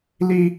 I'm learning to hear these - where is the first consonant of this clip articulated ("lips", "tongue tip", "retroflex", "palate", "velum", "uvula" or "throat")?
tongue tip